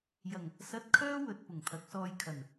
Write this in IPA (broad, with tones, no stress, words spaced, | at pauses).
jɐ˨˩ŋ | sɐ˧t̚kʰœː˥ wɵ˨t̚ pʊ˨˩ŋt̪ʰɐ˨˥k̚sɔː˧jkʰɐ˨˩n